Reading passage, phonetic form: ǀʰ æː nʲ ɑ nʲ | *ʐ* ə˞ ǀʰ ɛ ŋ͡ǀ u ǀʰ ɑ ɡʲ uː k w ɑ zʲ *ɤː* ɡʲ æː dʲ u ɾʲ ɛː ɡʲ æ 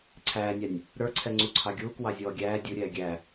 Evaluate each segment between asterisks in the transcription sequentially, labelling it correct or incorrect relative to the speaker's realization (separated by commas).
incorrect, incorrect